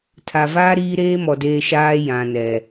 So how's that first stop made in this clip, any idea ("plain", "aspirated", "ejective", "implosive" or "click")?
aspirated